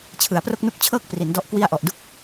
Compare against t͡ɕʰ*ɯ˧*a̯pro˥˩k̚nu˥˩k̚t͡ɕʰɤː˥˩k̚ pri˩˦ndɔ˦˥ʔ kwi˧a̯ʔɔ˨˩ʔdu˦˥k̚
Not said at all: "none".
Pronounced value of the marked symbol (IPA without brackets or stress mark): ɯ˩˦